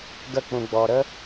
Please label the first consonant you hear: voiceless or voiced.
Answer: voiced